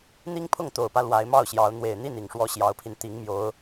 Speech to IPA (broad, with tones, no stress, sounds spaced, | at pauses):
n̪ i˦ ŋ pʰ ʊ˥˨ ŋ t̪ o˨˩ ʊ̯ p ä˦ l w a˨˦ ɪ̯ m ɑ˥˨ ʊ̯ ɕ j ɑ˨˦ ʊ̯ n̪ w e˨˩ ɪ̯ n̪ i˥˨ n i˨˩ ŋ ʂ w ɔ˦ ɕ j ɑ˨˦ ʊ̯ pʰ i˧ n t̪ i˨˦ ŋ m j o˨˦ ʊ̯